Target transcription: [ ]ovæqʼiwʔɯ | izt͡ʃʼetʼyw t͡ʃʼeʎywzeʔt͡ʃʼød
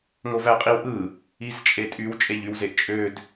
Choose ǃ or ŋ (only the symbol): ŋ